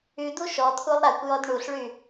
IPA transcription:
y d̪ u ʃ ɔ t̪ʰ u lˠ ɾ a kʷ j ɔ d ɳ u ɬ ɭ y

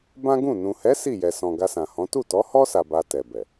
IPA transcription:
b ã˦ ɡ ũ˦˨ n ũ˨ h ɛ˨˦ s i˦˨ j ɛ˨ s ɔ̃˨ ɡ a˧ s ã˨ h ɔ̃˨˦ t u˦˨ t ɔ˨˦ h ɔ˦ s a˧ b a˧ t ɛ˨ b ɛ˨

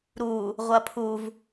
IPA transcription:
ɾ u | ʁʷ ɐ pʰ u v

